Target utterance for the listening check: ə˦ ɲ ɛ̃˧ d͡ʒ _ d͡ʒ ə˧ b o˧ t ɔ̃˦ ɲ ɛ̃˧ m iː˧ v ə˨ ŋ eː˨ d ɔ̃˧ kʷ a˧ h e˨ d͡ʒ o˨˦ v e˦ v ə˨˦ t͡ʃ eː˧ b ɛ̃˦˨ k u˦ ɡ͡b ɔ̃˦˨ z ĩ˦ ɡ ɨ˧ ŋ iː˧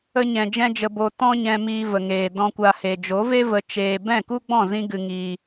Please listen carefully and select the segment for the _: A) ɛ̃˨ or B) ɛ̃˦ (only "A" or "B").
B